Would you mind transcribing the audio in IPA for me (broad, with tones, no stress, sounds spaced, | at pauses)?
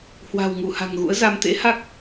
h w a̤˨˩ w ŋ u˧˩ h a̤˨˩ ŋ ɣ ṵ˧˥ ə̯ z a˧ m t̪ ḛ˧˥ h a˦˥ k̚